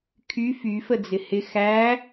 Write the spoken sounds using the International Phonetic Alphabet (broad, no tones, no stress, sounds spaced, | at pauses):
kʰ y f y f ə d͡z ɪ h ɪ x æ